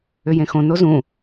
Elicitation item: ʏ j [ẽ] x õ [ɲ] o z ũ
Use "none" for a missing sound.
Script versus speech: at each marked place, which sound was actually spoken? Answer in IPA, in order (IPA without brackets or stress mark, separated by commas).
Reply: ẽ, n